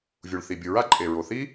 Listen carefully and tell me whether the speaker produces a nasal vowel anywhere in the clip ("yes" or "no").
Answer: no